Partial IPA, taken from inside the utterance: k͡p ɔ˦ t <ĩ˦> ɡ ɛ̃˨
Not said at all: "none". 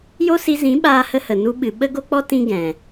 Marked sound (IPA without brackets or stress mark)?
ĩ˦